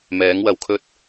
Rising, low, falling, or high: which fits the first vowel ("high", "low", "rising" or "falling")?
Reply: rising